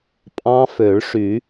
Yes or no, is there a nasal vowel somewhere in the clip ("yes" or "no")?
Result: yes